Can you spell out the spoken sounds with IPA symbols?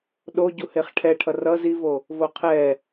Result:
ɗo ɟuheχʈʰɛʈʰʌr ʌz ivo | voqʰɛ

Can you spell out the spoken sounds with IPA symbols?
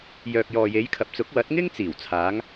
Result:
jœː˨k̚ jɔː˨je˨˧jkʰɐ˨p̚t͡sʊ˨˥k̚ wɐ˨˥t̚ŋɪ˥ŋ t͡siː˨˩wt͡sʰaː˨˧ŋ

